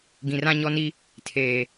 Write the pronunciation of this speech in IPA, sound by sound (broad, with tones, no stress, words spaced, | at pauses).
ɡĩ˨rã˦ɲɔ˦ni˦ | tʰeː˨